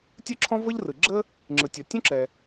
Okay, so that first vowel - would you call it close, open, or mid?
close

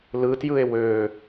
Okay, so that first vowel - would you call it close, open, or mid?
close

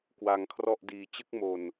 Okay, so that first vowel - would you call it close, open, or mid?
open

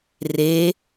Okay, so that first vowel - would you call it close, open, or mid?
mid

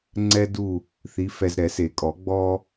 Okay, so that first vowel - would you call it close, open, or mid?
mid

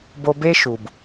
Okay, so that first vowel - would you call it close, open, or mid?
mid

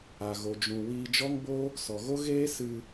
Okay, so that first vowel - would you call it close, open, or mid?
open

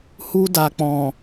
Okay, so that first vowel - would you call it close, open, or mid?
close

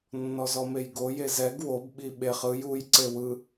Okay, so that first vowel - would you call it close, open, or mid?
mid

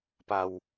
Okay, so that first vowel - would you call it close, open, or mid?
open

